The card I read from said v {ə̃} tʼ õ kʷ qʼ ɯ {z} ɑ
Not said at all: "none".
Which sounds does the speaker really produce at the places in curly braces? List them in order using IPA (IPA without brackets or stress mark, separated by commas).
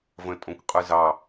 ə̃, z